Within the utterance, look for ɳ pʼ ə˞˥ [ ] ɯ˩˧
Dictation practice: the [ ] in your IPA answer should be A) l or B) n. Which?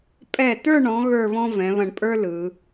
A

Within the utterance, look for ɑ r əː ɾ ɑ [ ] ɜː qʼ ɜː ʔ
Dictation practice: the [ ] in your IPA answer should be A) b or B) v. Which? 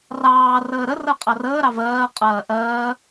B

